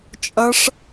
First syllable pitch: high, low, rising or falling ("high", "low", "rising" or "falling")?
high